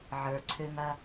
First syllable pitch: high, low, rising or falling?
low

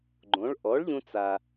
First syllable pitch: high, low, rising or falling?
rising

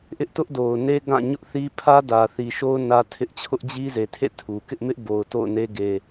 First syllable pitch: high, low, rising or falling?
high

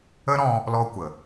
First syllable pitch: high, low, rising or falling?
high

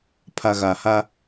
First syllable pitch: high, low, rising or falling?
low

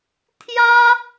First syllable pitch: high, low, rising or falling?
high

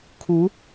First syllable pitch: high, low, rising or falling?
rising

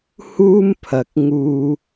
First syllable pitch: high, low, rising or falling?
high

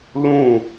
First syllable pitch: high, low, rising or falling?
falling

